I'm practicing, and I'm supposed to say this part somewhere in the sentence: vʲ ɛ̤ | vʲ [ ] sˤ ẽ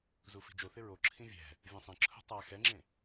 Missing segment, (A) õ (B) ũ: B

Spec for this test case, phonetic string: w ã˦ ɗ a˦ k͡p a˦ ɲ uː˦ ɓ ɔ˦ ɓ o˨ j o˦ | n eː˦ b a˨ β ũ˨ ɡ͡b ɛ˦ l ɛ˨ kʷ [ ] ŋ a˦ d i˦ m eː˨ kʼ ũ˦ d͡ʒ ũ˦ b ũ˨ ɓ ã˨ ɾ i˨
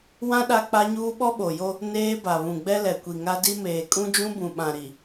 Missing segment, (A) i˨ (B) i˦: A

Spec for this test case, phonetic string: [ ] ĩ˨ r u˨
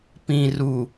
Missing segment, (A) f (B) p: B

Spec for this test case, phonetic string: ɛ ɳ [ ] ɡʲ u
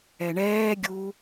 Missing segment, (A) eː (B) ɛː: B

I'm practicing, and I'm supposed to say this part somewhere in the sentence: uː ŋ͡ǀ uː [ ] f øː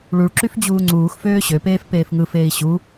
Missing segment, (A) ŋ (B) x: B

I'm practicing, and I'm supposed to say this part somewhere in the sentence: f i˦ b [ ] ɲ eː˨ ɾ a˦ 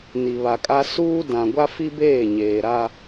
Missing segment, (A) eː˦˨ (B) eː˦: A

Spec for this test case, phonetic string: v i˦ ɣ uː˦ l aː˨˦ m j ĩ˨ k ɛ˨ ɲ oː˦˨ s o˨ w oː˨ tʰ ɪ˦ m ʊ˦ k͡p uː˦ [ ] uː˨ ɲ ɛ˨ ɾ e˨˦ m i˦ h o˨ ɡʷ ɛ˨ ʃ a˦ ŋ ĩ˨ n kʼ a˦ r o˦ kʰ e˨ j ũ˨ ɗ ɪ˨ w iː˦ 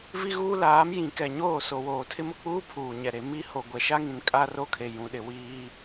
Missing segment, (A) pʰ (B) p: A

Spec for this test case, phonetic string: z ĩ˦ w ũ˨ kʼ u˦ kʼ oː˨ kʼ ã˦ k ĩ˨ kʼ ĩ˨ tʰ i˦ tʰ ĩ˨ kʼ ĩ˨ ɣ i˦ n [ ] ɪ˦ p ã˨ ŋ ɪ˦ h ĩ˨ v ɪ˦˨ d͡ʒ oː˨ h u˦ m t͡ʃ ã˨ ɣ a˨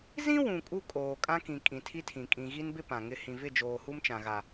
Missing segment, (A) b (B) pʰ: A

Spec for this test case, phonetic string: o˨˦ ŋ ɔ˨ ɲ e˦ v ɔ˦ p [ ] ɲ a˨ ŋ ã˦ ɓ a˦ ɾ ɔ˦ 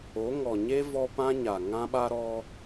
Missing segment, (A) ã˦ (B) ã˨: A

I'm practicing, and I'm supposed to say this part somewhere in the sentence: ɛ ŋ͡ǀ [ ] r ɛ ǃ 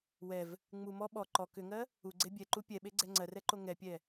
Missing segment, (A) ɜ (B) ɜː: A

